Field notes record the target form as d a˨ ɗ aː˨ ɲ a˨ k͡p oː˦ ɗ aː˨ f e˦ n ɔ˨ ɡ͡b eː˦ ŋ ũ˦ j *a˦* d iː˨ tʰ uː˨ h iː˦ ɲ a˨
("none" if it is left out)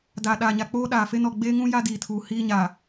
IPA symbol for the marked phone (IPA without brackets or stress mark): a˦